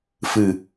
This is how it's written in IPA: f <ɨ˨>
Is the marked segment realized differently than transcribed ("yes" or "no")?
no